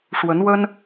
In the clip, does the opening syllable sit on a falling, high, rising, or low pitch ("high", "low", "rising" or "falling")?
rising